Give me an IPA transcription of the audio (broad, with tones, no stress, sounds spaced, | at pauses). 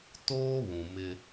t oː˦ β ũ˨ m ɪ˦